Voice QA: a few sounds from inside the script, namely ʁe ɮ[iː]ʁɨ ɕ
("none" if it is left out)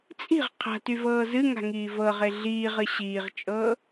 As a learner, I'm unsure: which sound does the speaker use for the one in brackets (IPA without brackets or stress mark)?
iː